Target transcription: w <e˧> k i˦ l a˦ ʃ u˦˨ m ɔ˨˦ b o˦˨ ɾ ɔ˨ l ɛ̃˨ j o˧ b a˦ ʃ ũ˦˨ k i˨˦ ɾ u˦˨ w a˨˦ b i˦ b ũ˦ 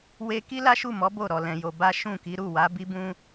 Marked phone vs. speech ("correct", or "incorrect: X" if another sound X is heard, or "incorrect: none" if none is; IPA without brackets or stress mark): correct